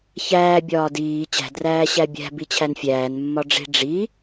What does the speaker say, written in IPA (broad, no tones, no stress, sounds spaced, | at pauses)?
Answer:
ç æː bʲ ɒː d iː t͡ɕ æ̤ d r æː ɕ æ bʲ æ̤ b i t͡ɕʰ æ n fʲ æː n mː ɒ ɖ͡ʐ e̤ ɖ͡ʐ i